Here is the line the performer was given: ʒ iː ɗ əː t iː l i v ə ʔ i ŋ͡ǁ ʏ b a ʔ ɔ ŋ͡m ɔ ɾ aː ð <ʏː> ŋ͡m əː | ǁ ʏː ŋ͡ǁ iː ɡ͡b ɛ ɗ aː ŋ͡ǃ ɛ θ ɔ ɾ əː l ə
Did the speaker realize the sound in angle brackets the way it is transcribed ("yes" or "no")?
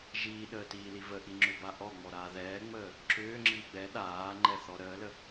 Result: no